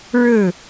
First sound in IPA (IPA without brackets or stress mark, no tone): ɻ